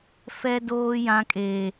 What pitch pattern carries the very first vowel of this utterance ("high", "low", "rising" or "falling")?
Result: high